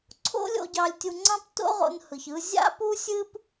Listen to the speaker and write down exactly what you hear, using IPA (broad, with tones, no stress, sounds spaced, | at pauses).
ǀʰ o̰˥ lʲ o̰˧ ɟ ɑ˧ lʲ tʲ u˧ ŋ͡ǀ ɑ̃˥ p t o̰˥ ʁ o̰˧ n h ɯ˩ ç ɯ˧ zʲ a̰˥ p u˥ sʲ ɨ˥ p